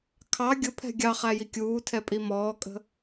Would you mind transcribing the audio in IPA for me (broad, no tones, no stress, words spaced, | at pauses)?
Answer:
kʰɑ ɡʲʊpʰɛ̤ ɡʲɑχæji kʲuːtʰɛpʼi mɔːkʼə̤